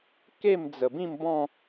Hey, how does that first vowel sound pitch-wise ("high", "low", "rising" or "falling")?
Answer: falling